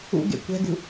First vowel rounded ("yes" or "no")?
yes